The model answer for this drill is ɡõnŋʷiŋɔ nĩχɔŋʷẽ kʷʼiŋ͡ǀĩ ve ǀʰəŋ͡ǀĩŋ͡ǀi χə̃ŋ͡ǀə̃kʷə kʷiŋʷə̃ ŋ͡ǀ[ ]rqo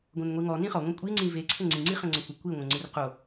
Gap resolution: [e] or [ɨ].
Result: ɨ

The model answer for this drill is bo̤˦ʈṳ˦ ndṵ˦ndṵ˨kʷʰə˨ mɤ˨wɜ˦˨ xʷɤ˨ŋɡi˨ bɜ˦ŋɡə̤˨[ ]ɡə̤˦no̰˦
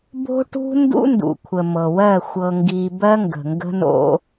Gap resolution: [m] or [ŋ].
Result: ŋ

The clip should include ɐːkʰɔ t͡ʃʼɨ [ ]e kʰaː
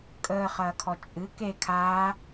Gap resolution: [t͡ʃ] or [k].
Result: k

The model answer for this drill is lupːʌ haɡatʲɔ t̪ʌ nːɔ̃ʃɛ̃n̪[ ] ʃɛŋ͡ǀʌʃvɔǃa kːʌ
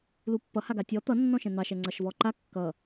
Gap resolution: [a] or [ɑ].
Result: ɑ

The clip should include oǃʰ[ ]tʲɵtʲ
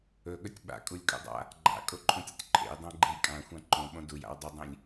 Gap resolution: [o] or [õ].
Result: õ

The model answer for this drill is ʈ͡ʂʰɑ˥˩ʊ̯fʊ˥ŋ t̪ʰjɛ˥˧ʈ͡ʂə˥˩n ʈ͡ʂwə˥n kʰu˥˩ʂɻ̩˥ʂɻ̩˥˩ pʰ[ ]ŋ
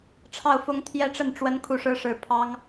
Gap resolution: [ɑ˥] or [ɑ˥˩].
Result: ɑ˥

